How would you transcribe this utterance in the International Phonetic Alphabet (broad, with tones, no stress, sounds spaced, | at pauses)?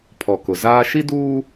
pʰ ɔ˨ k ʊ˨ z aː˦ ʃ i˦ d uː˦